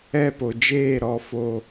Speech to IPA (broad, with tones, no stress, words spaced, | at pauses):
ɛ˦˨po˨d͡ʒeː˦˨ ɾɔ˨fo˨